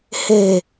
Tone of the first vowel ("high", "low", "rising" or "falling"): low